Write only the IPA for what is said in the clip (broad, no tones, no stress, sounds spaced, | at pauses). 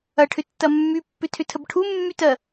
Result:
ɐ ʈʰ ʏ tː ɐ mː y pː ʏ tʰ ʏ tʰ ə b ʈʰ u mː y t ɜ